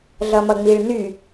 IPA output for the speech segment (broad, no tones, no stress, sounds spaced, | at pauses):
ɮ ʌ m ʌ ŋ͡m i ɭ n y